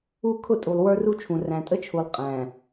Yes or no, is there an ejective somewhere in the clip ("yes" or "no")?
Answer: yes